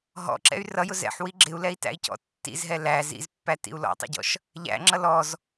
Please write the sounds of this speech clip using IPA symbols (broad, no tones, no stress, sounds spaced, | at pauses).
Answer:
ɦ ɔ̰ ǁ ɛ̰ y̯ r ʌ j ʊ z ɛ̰ ħ w i ɡ͡ǁ ɪ u̯ l ɛ i̯ t æ̰ i̯ c ɔ̰ tː ḭ z ɦ ɛ l æ z ḭ z pː æ t ḭ u̯ l ɔ̰ tˤ ḭ ɟ ɔ̰ ʃ | ʎ æ̰ ŋ͡ǁ ʌ l ɔ z